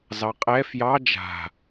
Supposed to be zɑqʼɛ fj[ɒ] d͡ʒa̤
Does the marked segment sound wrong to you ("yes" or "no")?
yes